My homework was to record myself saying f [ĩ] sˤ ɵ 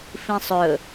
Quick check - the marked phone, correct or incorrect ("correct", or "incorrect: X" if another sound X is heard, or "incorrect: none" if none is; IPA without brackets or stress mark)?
correct